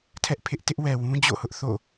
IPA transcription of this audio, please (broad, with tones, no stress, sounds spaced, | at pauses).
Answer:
tʰ ɛ˦ ʔ pʰ ɪ˦ ʔ t ɪ˦ ʔ w ɛ˨ w ũ˦ d͡ʑ o̰˦˨ h ʊ˦ ʔ θ o̰˦˨